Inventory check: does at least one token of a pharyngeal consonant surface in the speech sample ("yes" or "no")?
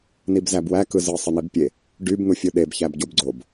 no